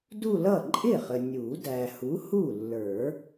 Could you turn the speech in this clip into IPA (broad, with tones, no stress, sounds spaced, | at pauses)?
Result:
d u˥˧ l ʌ˥˩ ǃʼ ɪ˥˩ χ ə˨ nʲ u˨˩˦ d æ˨ h u˨˥ h u˥˩ lː ə˞˨˩˦